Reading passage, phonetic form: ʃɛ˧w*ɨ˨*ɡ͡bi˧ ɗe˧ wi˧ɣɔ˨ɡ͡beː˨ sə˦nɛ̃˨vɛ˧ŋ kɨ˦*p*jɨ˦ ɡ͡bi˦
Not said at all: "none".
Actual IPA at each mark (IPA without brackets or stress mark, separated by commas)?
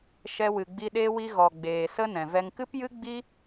ɨ˨, p